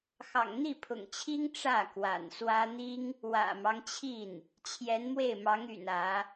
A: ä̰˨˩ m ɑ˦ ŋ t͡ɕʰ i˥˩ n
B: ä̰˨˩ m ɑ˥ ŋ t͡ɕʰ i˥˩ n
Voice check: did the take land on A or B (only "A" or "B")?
A